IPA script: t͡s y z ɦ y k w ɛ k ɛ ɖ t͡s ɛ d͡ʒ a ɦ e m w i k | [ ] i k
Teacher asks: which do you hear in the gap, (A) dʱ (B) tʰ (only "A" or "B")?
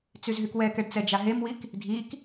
A